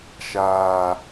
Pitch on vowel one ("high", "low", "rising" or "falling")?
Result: low